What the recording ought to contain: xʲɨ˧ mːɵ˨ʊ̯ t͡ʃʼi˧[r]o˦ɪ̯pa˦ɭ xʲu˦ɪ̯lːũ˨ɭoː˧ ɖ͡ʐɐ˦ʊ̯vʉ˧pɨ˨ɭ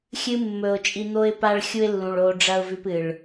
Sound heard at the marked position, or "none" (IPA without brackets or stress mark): n̪